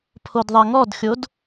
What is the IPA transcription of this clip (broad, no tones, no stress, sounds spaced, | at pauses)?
pʰ o d ðˤ ɛ ŋ ɔ d xʲ o d